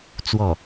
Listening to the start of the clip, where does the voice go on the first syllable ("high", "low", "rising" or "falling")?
falling